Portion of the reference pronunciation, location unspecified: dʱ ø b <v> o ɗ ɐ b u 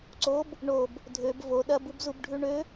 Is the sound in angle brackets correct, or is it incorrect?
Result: correct